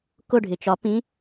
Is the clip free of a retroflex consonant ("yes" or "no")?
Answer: no